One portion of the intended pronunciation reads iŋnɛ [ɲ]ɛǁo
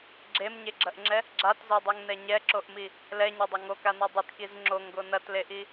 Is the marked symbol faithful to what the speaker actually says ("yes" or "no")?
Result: yes